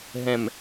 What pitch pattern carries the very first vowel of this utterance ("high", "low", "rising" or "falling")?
low